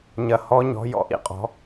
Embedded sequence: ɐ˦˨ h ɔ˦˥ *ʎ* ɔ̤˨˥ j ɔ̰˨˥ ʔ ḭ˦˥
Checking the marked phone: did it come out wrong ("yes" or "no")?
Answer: yes